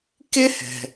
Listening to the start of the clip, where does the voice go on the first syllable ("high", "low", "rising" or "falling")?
high